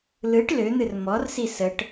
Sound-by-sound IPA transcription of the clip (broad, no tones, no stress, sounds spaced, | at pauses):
l ɯ ʈ l ø n̪ ɨ r m ɔ r s i s ə ʈ